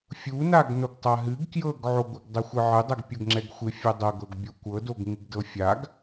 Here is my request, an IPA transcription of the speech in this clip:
fʲ u n a ɡ n o ɡ tˤ a ɦ ɨ ɡ k j ɤ ɡ ʕ o ɡʷ ɨ ɡ dˤ ɨ xʷ ɨ ʕ ɨ dˤ ɛ ɡ pʲ ɤ ɡ ŋ͡ǁ ɛ ɡ xʷ ɪ fʲ ɛ dˤ ɤ ɡ ɤ ɡ bʲ o kʷ ɤ d o ɡ ŋ ɨ ɡ d ɤ fʲ a ɡ

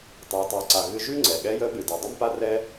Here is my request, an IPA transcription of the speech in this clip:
tˤ a˩˧ tˤ œ˩˧ ǀ a˩ ɣ ɨ˧ ʒ ʉ˥ ŋ͡ǀ ɛ˩ ɠ ɛ˧˥ j ə˧˥ ɓ ɨ˩ d ɨ˩ dˤ ʉ˥ m p a˥ r ɛ˥

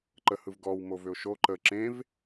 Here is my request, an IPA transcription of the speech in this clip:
ǃ ə h ɯ v ɡ ɔ w m o v ʏ ʊ̯ ʃ o ǃ ə ǁ ẽ v

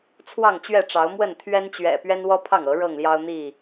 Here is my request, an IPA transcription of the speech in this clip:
t͡sʰ w ɑ˥˨ ŋ t͡ɕ ɥ ɛ˥˨ ʈ͡ʂ ɑ˨˦ ʊ̯ m w ə˥˨ n t̪ʰ ɥ ɛ˦ n t͡ɕ ɥ ɛ̰˨˩ p ɥ ɛ˦ n w ɔ˦ pʰ ɑ˥˨ ŋ ɤ˨˦ ɻ ɤ˥˨ ŋ l j ɑ˦ ʊ̯ n̪ i˥˨

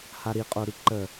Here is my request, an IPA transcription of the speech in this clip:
h a ɾ i qʼ o ɾ i ǃ ə

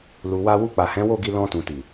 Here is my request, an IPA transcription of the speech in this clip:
l u˨ w a˧ w u˧ k͡p a˨ h ɛ̃˨˦ w o˦˨ ɡ i˧ l ɔ̃˧ t ũ˨ t i˨

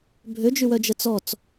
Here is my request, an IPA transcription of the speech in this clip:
bʱ ø d͡ʒ y w œ d͡ʒ ə t͡s ɔ t͡s

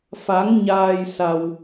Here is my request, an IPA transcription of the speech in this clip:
f a˨˦ ŋ ɲ aː˧ j s a˧ w

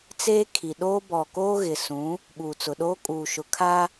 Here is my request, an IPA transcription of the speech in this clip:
t͡s eː˦ kʰ i˨ ɗ oː˦ b ɔ˨ k oː˦ ɣ ɪ˨ s ũ˨˦ | ɓ uː˨ t͡s ʊ˨ ɗ oː˦ kʼ uː˨ ʃ ʊ˨ kʰ a˦

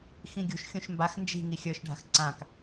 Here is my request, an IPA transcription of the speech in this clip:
x ĩ ɡʲ ṳ ʃ xʲ ũ ʃ m b a x n d͡ʒ i̤ ŋ i xʲ ə˞ ʃ ɖʱ a̤ x ǀ ã k

